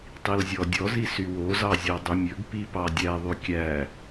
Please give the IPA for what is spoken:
tˤilzʲɔdʲɔzi sywozɑ zʲodˤymʲɵɡpi pɑdʲæðˤy kʲæ

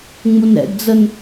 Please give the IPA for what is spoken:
ŋ͡munɾɛ̰ɡd͡zən

